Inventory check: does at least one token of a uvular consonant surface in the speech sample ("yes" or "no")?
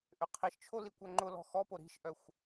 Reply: yes